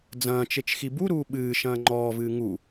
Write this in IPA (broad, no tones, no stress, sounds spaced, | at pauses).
d͡z ɐ̃ː t͡ʃ e t͡ʃ x i b u ɾ uː ɓ ɨː ʃ ɐ̃ː ŋ͡ǃ ɔː v ɨː ŋ u